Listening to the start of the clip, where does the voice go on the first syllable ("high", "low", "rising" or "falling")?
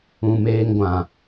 low